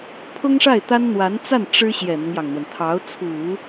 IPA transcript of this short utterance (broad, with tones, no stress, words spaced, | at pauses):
pʰʊ˥ŋʂa˥˩ɪ̯t̪a˥n n̪wa˧˥nt͡sa˥˩n ʈ͡ʂɻ̩˥ ɕjɛ˨˩n̪ʊ˦ŋjɑ˩ŋn̪wə˩n t̪ʰɑ˧˥ʊ̯t͡sʰu˨˩˦